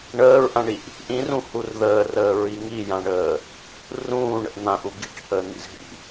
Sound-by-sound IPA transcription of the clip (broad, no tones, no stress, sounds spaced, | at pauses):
ɳ əː ɹ ʔ ã ɳ i ʔ | ʔ ĩ r ũ h u r ð əː r əː ɹ i ŋ i j ã ɳ əː | r ũː ɳ ə̰ ʔ n̪ ã ʔ u ɡ i ʈ h əː n̪ ḭ z ɦ ḭ